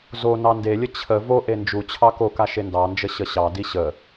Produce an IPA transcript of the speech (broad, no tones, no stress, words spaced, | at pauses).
zo nɑndelʲə t͡ɕʰə vo ʔend͡ʒut͡ɕʰɑ koka ʃendɑnd͡ʒə ɕəɕɑdi ɕə